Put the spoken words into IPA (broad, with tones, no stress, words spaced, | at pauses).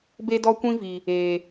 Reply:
be˦dɔ˦kʷĩ˦vi˨ | eː˨